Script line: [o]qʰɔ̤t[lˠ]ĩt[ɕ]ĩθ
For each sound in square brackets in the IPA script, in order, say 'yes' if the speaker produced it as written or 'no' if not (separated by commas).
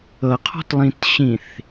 no, yes, yes